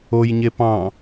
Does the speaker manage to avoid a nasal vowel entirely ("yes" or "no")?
no